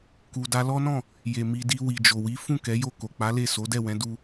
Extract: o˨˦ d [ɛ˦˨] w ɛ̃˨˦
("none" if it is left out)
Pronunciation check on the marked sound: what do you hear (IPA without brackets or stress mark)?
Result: ɛ˦˨